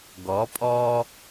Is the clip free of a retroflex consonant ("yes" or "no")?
yes